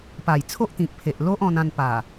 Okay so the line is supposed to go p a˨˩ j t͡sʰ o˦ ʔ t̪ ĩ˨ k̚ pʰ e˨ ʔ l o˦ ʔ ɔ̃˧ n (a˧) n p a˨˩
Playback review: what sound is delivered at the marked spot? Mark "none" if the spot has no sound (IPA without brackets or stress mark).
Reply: ã˧